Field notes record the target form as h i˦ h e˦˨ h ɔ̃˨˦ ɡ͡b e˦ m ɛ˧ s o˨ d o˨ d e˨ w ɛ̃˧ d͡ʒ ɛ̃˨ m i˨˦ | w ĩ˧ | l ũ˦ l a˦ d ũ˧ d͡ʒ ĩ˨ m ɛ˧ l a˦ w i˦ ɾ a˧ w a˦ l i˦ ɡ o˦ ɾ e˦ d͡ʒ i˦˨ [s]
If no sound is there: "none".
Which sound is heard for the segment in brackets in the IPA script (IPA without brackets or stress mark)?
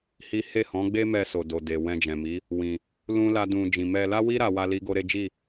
none